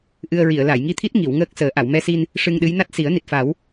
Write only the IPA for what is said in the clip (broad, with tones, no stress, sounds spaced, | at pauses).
ʔ ɨ˧ ə̯ ɹ i˨˩˨ ə̯ l a˨˩˨ j ŋ i˧ t̪ʰ i˦˥ t̚ ŋ i˨˩˨ w ŋ əː˦˥ k̚ s əː˨˩˦ ʔ a˨˩˨ w m ɛ˧ s i˧ n | ʂ ɨ˧ ŋ ɗ ɨ˧˥ j n a˦˥ t̚ s i˨˩˦ ə̯ n i˨˩ t̚ f a˨˩˦ w